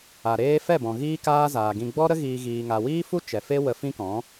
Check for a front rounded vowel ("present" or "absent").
absent